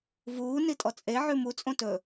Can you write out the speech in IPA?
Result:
vuː nitʼɔt͡sʼe ʕʉmu t͡sʼõtɵ

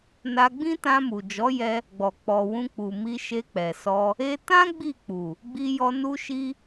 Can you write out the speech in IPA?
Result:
na˧ɡ͡bĩ˦ tã˧mu˨ d͡ʒɔ˨˦jɛ˧ | ɡ͡bɔ˨ k͡pɔ˨ wũ˧k͡pu˨ mi˧ʃe˧k͡pɛ˨sɔ˧ | e˧tã˦ ɡ͡bi˦˨k͡pu˨ | ɡ͡bi˧jɔ˧ nu˦ʃi˦

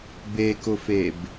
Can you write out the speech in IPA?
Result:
bekʊfeb

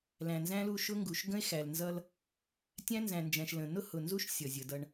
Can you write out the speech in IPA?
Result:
læ̃˨nzæ̃˦lu˦˨ ʃʊ˦ŋɡu˨ʃ ɡə̃˦e̯xæ˨lnzʌ˦l | tʲæ̃˦nzæ̃˨nd͡ʒæ̃˨ʃ lə̃˨ nʊ˦hʊ˨nzu˦ʃ sʲʌ˨zʲə˨˦dʌ˦ɳ

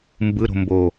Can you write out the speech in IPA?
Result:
mbɯɾo̤ mbo

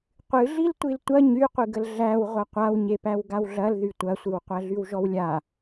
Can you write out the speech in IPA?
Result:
qʷɨɮil tʷiltʷɐ ɲyqʷɨɡəl ɮæw ʁʷɐqʷawɲepæw ɡawɮɐlðy tʷɐsʷɨw qʷæɮywʒɔwlʲa

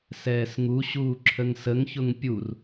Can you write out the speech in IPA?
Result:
sɛːsŋuɕuː ǁʰəŋsəŋçʊŋ pʲur

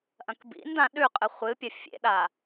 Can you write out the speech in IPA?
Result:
ʔɐ̃kbḭn dãɗʉqʼɨ χʷɨpʲɐ fʲḛɗa

